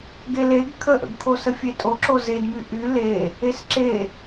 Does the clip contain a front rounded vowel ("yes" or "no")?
yes